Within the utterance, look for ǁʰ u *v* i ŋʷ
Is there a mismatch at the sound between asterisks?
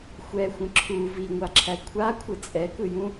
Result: no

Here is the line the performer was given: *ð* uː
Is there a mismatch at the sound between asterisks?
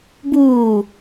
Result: yes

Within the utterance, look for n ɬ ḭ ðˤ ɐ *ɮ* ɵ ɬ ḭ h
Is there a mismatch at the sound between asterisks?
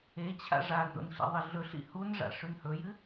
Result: no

